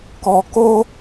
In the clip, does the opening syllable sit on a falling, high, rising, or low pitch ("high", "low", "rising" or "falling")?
low